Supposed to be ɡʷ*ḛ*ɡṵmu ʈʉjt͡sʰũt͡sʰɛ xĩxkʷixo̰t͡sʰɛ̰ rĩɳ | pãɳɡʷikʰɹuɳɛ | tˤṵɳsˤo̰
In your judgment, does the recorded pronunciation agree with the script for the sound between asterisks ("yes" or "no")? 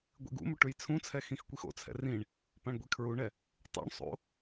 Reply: no